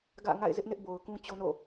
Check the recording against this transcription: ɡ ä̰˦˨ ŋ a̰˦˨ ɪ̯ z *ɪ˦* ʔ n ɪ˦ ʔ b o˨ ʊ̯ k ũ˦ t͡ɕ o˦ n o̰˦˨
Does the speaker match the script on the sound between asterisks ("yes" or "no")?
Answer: yes